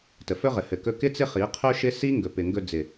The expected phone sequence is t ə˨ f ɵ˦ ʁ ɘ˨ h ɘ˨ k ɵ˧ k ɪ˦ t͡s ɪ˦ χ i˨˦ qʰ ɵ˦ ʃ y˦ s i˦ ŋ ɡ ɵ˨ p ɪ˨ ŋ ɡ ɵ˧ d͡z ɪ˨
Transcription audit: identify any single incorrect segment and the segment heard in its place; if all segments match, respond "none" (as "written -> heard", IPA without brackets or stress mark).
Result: y˦ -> ɪ˦